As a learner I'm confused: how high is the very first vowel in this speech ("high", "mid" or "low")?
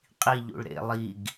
high